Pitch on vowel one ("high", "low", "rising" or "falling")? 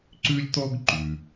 high